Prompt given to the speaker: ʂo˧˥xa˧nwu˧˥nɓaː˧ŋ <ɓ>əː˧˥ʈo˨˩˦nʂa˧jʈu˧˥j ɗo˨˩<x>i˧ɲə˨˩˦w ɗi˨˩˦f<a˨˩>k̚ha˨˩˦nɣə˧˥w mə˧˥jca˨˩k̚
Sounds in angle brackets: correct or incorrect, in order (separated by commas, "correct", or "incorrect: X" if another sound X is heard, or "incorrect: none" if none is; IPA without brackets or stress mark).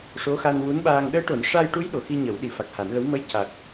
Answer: incorrect: ɗ, correct, correct